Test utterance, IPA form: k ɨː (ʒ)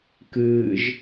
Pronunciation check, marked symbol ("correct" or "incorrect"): correct